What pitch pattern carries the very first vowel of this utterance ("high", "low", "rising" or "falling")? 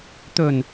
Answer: low